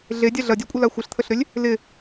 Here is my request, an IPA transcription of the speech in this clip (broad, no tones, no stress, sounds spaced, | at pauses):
ɮ e dʲ a ɮ ɐ dʲ a kʷʼ ə l a xʷ ɪ ɬ t̪ʰ ə ɬ ɾ ʏ lʲ | l ɪ